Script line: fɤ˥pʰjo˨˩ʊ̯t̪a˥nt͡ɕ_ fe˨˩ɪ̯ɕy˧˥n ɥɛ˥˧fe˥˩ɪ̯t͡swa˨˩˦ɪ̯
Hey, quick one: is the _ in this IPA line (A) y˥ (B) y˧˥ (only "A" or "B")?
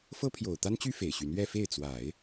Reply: A